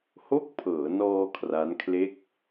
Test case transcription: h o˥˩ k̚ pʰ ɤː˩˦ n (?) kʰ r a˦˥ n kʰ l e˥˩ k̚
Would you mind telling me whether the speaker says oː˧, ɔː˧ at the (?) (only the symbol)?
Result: ɔː˧